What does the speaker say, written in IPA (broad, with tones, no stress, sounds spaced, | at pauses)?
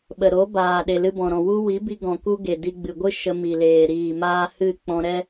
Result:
ɓ ə˨ ɾ o˨˦ b aː˨ ɗ e˨ l ɨ˧ b ɔ̃˨ ɾ ɔ̃˨ w u˦ w i˨˦ b i˧ ɡ ɔ̃˨ k u˧ ɡ e˨ d i˧ ɡ͡b ɨ˨ ɡʷ ɨ˦ ʃ ə˧ m i˨ l eː˨ ɾ iː˨ m aː˧ h ɨ˦˨ k͡p ɔ̃˧ ɾ ɛ˦